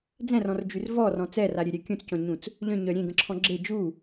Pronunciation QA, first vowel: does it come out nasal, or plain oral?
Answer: nasal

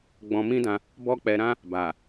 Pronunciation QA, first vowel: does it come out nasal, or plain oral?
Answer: nasal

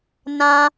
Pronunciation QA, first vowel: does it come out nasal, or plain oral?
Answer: nasal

